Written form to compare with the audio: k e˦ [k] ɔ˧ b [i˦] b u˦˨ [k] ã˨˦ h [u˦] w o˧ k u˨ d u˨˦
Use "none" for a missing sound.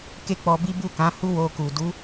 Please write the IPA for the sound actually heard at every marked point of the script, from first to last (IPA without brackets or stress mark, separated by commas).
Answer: k͡p, i˦, k, u˦